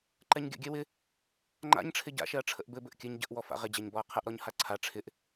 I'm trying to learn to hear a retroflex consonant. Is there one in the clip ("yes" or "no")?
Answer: yes